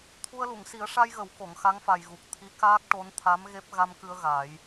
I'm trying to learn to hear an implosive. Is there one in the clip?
no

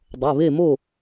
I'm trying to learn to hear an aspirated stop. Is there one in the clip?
no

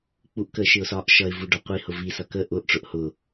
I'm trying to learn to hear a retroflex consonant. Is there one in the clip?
yes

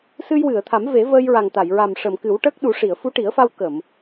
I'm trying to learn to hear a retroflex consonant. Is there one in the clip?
yes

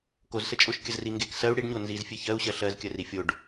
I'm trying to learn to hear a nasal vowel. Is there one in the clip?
no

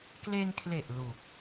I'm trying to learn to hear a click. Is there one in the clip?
no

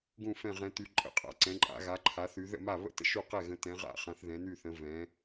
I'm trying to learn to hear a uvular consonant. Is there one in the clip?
yes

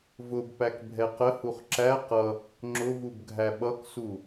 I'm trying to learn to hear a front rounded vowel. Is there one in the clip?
no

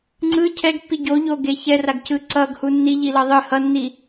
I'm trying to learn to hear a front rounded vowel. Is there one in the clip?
no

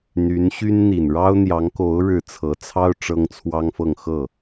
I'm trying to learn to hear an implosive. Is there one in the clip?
no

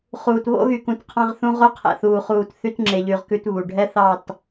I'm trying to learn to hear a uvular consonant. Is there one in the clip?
yes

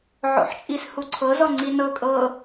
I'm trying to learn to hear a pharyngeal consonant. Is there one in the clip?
yes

